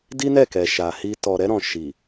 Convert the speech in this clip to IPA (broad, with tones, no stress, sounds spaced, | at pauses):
d i˦ n ɛ˦˨ k ɛ˨ ʃ a˨ h i˧ t ɔ˨ ɾ ɛ˧ ɾ ɔ̃˨ ʃ i˨